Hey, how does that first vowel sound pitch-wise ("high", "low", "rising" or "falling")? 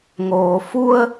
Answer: low